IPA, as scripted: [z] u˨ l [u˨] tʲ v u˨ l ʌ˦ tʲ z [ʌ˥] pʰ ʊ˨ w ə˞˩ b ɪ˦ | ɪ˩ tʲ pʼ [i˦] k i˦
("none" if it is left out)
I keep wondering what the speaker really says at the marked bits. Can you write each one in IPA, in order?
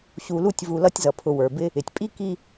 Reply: ɕ, u˦, ʌ˩, i˦

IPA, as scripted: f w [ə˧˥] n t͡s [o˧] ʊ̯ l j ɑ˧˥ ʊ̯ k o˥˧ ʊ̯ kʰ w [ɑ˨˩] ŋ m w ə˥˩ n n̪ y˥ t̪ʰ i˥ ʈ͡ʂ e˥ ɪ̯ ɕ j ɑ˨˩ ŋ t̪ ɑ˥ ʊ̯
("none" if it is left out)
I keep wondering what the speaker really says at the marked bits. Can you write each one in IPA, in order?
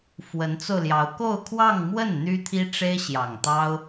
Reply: ə˧˥, o˧, ɑ˥˧

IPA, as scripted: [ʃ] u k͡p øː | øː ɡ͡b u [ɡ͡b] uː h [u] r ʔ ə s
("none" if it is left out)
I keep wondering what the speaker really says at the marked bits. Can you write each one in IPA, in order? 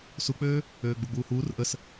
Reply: s, ɡ͡b, uː

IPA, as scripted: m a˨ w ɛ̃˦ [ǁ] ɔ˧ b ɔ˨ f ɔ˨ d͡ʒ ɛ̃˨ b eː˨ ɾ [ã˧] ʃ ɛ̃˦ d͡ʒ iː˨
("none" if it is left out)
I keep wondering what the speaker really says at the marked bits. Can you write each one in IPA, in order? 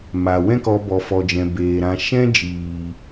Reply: k, ã˧

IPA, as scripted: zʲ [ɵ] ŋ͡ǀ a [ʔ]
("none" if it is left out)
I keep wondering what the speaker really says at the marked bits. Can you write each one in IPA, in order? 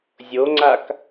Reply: o, k

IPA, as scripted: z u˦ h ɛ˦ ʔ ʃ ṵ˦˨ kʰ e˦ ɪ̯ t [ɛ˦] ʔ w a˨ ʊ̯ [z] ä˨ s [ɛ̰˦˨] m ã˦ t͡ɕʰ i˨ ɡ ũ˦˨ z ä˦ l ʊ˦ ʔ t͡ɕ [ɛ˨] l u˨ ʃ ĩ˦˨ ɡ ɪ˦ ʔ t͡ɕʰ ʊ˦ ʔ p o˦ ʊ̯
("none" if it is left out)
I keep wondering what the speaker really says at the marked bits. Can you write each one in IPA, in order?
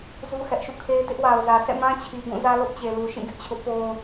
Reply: ɪ˦, z, ɛ̰˦˨, e˨

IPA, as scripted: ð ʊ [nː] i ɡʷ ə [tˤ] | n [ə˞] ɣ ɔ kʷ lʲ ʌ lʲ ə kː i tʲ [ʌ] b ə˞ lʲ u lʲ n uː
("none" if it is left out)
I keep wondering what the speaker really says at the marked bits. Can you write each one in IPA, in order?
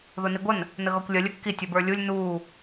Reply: n, n, ə, ʌ

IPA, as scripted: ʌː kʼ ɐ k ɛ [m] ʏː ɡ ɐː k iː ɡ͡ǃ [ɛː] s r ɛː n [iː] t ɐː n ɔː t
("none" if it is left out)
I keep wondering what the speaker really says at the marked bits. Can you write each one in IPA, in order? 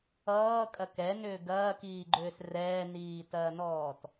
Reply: n, ʏː, iː

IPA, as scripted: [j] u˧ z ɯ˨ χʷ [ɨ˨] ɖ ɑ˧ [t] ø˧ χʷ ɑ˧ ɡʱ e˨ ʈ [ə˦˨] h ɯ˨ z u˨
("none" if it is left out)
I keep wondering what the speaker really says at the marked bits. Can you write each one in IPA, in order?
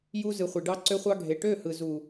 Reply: j, e˨, ǀ, ø˦˨

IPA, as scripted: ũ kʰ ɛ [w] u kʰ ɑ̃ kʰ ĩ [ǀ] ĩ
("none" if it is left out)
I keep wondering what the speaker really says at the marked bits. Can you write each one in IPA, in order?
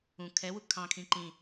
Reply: w, ǃ

